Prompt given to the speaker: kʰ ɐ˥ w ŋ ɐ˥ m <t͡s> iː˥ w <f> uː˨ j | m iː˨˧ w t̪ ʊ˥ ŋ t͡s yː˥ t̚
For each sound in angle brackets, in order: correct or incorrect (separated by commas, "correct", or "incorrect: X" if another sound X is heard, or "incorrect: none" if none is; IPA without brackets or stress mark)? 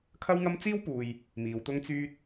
correct, incorrect: p